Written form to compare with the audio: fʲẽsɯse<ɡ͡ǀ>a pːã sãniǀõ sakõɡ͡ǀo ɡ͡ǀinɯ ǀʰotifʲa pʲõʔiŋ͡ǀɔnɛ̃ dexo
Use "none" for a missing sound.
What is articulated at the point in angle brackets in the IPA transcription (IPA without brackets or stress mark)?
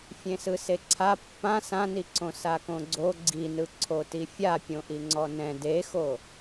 ǀʰ